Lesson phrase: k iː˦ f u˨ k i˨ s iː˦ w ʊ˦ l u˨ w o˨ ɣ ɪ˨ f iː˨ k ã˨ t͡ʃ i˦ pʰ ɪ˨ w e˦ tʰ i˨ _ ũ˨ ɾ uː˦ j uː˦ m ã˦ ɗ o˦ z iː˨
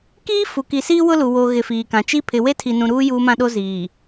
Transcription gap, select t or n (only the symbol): n